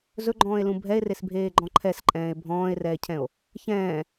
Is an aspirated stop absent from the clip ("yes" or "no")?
no